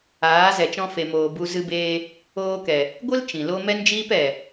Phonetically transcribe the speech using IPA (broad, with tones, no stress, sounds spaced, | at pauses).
aː˨˦ z ɛ˨ t͡ʃ ɔ̃˧ f e˨ m oː˨ b u˧ z ɨ˧ b eː˧ | oː˧ k ɛ˨ | ɡʷ ɨ˦ l t͡ʃ ĩ˨ l o˦ m ɛ˦ n d͡ʒ iː˦ p ɛ˨